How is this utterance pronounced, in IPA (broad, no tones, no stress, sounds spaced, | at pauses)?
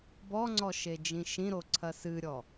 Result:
b ɔ ŋ͡ǀ ɔ ʃ e d͡ʒ ĩ ʃ ĩ ɾ o ǀʰ ɐ s ɨ ɾʲ ɔ